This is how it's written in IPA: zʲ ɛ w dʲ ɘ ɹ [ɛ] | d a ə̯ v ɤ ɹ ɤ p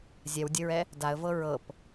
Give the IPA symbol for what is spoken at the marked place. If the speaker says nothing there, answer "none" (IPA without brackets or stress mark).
ɛ